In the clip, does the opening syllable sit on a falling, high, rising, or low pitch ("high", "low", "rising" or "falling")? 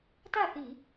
falling